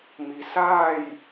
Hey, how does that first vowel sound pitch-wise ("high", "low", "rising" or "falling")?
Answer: low